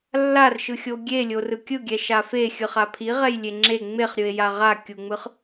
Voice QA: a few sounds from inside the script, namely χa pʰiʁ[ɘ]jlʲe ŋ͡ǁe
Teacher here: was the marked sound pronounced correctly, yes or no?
no